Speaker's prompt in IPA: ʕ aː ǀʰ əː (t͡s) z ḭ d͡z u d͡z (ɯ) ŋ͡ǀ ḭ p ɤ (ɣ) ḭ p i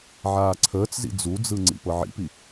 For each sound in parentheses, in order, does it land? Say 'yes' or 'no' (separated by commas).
yes, yes, no